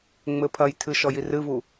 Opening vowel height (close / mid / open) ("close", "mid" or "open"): mid